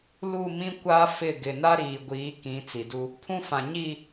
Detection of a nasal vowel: present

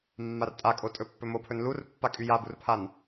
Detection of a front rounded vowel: present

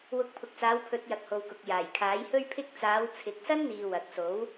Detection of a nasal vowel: absent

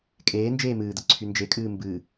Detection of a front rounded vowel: present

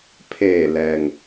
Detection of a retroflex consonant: absent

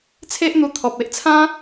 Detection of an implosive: absent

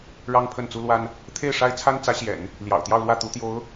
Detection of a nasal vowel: absent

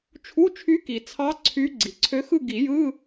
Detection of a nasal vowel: absent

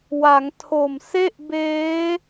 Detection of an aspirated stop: present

